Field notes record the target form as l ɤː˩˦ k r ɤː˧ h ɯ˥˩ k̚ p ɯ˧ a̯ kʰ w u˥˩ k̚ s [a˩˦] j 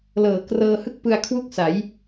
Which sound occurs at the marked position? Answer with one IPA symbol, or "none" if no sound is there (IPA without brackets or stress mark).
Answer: a˩˦